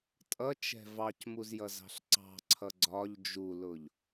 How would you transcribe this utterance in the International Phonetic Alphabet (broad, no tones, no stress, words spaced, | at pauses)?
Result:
tʼʌt͡ʃɛ̤ vɑcmuzjʌzɑ̤ɬ ǀɑ̤ǀʰʌ ɡ͡ǀɒʎ d͡ʒulʊʎ